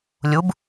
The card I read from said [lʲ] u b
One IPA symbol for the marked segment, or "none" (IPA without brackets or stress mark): lʲ